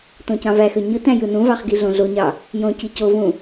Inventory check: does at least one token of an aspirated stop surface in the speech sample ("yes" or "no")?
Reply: no